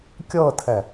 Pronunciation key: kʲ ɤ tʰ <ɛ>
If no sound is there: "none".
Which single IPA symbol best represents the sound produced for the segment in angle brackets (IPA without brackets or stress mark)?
ɛ